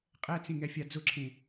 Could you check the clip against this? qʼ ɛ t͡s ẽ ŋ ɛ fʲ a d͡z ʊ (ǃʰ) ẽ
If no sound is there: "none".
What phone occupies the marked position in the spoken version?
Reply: ǁʰ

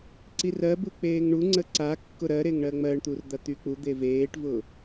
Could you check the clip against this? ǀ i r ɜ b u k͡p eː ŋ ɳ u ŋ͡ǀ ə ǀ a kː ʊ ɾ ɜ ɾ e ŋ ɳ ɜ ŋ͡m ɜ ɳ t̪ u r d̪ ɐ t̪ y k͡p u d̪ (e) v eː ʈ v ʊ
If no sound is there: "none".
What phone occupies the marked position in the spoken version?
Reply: e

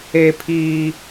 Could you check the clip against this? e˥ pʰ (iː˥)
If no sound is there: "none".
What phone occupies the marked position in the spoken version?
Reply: iː˥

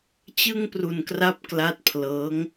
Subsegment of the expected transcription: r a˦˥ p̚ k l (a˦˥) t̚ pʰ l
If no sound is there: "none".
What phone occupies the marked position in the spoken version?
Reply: a˦˥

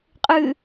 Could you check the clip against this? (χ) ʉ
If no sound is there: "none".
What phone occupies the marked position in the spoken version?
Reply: qʼ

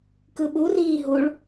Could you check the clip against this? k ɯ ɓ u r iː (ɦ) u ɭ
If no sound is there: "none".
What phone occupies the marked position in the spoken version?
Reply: ɦ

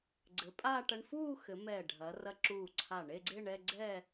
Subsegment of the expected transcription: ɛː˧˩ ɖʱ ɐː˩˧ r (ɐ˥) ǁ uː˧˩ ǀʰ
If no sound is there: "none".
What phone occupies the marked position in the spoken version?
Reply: ɐ˧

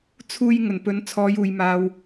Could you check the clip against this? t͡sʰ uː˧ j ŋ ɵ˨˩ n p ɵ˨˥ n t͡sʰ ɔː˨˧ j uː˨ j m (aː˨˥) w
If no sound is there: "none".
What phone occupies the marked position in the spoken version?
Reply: aː˧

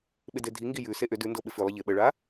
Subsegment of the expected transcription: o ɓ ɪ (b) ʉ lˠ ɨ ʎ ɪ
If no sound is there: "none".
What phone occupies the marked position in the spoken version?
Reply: f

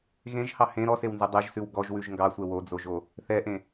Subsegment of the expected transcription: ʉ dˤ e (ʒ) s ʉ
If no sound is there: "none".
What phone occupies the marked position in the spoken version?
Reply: ʒ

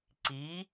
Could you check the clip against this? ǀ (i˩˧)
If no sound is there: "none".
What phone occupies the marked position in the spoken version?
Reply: i˩˧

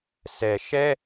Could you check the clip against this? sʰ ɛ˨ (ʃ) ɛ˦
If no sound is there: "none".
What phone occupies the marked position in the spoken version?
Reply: ʃ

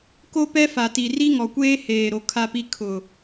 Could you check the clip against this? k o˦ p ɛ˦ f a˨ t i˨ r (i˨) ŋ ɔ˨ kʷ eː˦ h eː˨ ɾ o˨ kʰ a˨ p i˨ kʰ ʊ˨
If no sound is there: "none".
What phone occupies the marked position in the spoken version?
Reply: i˦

